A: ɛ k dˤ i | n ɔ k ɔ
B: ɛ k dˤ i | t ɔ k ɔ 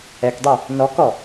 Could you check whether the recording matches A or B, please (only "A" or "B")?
A